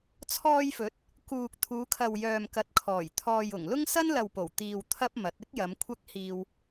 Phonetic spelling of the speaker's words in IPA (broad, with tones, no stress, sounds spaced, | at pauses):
t͡sʰ ɔː˧ j f ɵ˨˥ t̚ | k uː˨ k̚ t̪ʰ uː˨˧ kʰ ɐ˨ w j œː˨ m k ɐ˨ t̚ kʰ ɔː˨˩ j t̪ʰ ɔː˨ j ʊ˨˩ ŋ l ʊ˥ ŋ s ɐ˥ n l ɐ˨ w p o˨˩ w t̪ iː˨ w t̪ʰ ɐ˥ p̚ m ɐ˨˥ t̚ ɪ˥ k̚ j ɐ˨˧ m kʷʰ ɐ˥ k̚ h iː˧ w